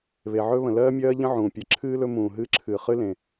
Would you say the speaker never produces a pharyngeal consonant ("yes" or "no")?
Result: no